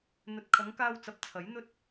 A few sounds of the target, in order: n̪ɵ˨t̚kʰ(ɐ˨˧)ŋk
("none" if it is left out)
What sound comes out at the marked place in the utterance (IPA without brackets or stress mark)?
ɐ˨˧